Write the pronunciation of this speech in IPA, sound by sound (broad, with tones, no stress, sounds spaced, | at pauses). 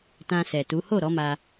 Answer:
t ã˧ s ɛ˨ t u˨˦ h o˦˨ ɾ ɔ˨˦ m a˧